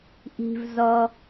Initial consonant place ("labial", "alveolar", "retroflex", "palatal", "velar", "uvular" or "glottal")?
glottal